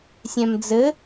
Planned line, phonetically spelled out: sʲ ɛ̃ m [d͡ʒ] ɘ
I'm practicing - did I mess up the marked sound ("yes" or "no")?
yes